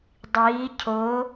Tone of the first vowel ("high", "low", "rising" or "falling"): rising